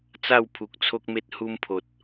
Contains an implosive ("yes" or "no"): no